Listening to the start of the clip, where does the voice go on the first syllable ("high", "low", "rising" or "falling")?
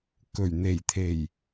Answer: low